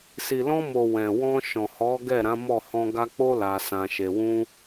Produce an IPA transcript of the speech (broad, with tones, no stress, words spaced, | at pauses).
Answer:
si˨lɔ̃˧mo˨ wɛ̃˨wɔ̃˧ ʃɔ̃˨hɔ˨˦ ɡɛ˦˨ɾã˨˦mɔ˦˨ hɔ̃˧ɡa˧k͡po˦ la˧sã˧ʃe˧ wũ˧